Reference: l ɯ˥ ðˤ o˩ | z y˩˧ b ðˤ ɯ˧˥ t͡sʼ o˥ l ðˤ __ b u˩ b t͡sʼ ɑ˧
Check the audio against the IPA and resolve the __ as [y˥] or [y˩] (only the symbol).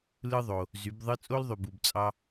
y˩